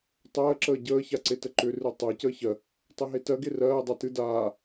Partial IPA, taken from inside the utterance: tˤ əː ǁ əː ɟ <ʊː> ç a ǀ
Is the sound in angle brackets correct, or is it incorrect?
incorrect: əː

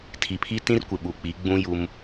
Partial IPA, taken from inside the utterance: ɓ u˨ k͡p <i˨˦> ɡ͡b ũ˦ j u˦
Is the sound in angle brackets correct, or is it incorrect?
correct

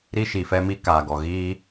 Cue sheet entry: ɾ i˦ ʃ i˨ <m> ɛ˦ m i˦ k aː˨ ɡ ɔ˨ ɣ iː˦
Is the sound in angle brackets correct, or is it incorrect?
incorrect: f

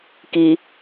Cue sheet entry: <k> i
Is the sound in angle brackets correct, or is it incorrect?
correct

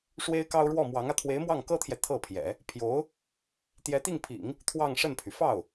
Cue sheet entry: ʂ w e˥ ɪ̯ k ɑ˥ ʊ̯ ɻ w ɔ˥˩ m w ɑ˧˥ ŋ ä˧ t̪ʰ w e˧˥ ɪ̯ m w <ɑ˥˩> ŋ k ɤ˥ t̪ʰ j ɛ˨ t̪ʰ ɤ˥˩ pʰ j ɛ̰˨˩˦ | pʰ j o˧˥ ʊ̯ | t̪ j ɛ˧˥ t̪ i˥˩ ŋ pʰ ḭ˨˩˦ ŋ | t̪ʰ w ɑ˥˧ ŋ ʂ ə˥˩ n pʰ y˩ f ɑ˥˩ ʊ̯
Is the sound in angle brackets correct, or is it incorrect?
correct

